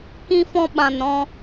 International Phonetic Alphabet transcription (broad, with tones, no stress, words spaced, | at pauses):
kĩ˦fɔ̃˦ɓã˧n ɾɔ̃˧